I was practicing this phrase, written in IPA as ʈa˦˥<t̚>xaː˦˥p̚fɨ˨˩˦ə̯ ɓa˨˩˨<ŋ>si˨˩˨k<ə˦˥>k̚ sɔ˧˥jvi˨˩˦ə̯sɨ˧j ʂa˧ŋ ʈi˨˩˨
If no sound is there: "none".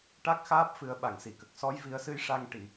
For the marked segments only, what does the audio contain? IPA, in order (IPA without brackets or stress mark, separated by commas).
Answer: k̚, ŋ, ə˨˩